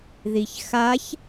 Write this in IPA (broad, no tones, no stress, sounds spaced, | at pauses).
ð i ç x a ç